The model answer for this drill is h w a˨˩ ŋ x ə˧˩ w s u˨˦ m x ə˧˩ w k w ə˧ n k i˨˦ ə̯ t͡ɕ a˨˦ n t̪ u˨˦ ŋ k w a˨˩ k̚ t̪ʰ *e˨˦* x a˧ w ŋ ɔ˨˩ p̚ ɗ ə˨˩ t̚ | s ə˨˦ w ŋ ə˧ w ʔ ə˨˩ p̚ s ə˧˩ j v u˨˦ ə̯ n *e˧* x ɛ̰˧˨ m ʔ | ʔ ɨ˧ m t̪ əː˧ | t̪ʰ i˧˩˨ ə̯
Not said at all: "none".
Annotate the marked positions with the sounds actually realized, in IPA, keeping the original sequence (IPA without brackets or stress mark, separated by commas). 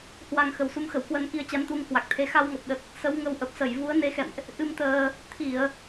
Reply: e˨˦, e˨˦